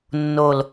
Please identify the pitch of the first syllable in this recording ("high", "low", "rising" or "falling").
low